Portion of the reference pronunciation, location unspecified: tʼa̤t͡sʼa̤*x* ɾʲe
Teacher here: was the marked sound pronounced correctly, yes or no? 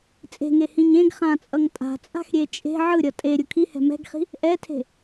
yes